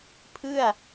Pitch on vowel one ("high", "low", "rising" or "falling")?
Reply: falling